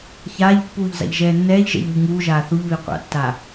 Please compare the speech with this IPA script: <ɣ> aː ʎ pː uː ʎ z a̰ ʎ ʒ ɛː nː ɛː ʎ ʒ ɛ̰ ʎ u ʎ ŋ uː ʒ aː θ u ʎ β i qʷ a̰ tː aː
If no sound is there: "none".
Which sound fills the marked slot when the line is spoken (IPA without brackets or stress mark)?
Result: ç